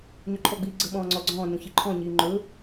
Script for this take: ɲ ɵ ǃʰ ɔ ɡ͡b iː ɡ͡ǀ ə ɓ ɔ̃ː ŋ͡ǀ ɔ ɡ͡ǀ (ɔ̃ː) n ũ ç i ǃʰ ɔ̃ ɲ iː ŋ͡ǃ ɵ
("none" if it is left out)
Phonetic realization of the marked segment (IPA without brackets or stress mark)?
ɔ̃ː